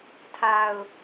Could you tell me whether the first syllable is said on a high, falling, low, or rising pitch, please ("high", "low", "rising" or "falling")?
low